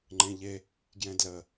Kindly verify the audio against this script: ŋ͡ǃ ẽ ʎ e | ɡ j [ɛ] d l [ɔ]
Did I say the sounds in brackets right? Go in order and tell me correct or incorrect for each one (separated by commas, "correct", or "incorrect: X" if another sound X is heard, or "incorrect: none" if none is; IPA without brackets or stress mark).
incorrect: ɛ̃, incorrect: ə